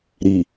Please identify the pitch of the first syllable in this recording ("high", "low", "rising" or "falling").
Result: low